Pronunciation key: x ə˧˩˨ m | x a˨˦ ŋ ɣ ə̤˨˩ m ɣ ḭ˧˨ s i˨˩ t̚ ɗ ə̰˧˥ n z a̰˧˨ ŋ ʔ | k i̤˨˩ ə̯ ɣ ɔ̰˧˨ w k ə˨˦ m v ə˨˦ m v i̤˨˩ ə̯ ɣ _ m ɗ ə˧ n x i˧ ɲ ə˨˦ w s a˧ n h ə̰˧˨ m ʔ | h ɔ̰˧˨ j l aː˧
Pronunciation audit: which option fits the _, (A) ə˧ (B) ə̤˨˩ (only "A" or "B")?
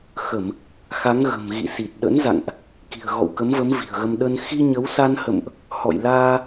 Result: A